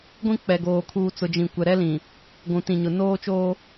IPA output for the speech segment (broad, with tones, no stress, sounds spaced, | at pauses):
ɡʷ ĩ˦ k͡p ɛ˨ ɡ oː˨ kʰ uː˨ t͡s ʊ˨ d͡ʒ ĩ˨ kʷ ɛ˨ ɾ ɛ˦ l ĩ˨ | ɡʷ ũ˨ t ĩ˨ ɲ ʊ˨ n oː˦ t͡ʃ oː˦